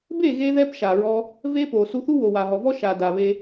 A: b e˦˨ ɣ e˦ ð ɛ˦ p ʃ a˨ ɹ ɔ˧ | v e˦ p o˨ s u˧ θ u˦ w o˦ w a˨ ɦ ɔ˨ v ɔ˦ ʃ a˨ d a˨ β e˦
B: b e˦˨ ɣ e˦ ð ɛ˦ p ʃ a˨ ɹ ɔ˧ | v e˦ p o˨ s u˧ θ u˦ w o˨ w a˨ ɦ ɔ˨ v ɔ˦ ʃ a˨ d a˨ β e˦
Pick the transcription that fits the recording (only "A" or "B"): B